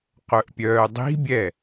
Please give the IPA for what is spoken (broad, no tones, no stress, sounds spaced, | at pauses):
q œ ʔ pʲ œː dˤ i̤ bʲ ɛ